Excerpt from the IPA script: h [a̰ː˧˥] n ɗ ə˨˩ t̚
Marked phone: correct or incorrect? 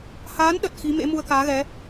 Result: incorrect